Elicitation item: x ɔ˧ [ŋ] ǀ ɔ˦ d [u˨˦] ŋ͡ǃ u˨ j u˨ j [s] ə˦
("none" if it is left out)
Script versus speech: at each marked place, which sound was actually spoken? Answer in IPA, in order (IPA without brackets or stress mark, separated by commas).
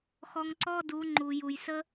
ŋ, u˨˦, s